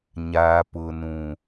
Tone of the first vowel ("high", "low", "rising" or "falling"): high